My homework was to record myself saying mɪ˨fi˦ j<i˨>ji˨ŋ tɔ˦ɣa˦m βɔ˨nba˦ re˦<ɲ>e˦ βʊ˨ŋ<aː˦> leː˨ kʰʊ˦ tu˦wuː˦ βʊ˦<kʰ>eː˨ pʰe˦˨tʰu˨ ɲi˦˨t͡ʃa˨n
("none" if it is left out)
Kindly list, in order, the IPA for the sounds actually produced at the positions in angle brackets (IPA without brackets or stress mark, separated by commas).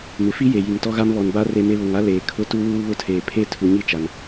e˨, m, a˦, tʰ